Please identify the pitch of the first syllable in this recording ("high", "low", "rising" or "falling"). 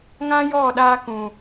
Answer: high